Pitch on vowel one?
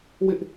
high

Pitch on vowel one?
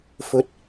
rising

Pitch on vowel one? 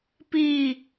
falling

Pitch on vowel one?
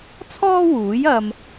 high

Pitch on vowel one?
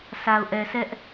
low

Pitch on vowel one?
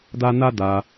high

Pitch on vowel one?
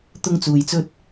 high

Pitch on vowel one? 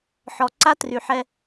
low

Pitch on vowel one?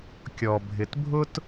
low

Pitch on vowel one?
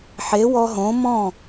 rising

